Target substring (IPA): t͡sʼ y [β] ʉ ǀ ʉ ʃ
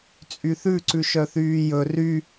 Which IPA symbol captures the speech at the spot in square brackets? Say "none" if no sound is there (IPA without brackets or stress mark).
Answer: θ